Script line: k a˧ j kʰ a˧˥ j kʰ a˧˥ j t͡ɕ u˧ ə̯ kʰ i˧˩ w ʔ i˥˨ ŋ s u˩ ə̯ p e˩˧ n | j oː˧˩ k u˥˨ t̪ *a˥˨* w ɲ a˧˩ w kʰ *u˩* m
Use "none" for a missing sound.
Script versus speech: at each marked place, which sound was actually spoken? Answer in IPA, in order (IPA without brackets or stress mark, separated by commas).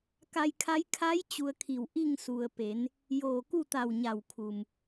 a˧˩, u˩